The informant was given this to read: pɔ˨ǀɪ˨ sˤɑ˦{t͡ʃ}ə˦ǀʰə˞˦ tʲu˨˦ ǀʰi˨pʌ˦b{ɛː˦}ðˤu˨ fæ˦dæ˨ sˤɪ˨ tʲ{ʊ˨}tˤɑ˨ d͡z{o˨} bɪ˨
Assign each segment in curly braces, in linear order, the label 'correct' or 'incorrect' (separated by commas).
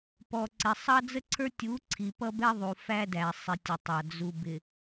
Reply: incorrect, incorrect, correct, incorrect